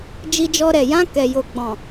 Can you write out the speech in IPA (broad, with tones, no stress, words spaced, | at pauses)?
d͡ʒi˧d͡ʒɔ˧ɾɛ˨ jã˧ kɛ˨jo˨ ɡ͡bɔ̃˨